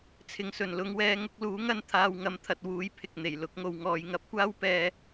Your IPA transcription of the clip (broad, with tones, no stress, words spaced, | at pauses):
t͡sʰɪ˨ŋsɵ˨˩nlʊ˨˥ŋ wɛː˧ŋʊ˨˥k̚luː˨˥ŋɐ˥n t̪ʰaː˧w ŋɐ˧mt̪ʰɐ˧t̚ wuː˨˥j pʰɪ˨k̚ n̪e˨˩j lʊ˨˥k̚ŋo˧wŋɔː˨˧j ŋɐ˧p̚kʷaː˥w pɛː˥